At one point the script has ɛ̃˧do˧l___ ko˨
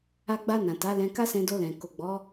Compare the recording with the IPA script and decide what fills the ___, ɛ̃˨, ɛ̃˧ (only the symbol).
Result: ɛ̃˨